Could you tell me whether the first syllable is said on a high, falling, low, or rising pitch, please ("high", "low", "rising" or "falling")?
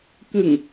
low